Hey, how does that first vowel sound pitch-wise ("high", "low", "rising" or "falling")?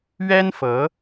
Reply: high